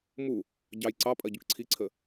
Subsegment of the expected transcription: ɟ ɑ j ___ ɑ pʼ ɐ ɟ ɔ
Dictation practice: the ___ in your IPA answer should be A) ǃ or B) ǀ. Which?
B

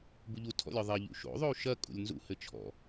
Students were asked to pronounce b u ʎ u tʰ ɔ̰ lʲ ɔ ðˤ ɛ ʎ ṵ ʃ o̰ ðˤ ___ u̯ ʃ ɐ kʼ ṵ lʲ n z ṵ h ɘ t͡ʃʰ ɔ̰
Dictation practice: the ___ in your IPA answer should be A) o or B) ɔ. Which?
A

